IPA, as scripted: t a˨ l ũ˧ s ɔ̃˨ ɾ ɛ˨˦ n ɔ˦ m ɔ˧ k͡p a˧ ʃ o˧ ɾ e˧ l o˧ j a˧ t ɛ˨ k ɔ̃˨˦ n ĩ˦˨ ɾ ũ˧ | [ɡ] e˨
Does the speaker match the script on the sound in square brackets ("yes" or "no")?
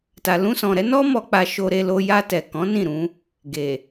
yes